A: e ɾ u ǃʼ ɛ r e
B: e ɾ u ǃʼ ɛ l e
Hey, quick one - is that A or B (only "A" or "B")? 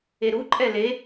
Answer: B